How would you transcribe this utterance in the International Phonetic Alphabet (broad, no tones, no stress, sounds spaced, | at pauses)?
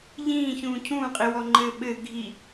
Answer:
ʎ ĩː ç ũː cʰ ũː qʼ i w ɔ ŋ͡ǃ ɘː ɓ ɘ ɡʱ i